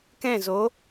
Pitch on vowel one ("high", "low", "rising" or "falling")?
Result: falling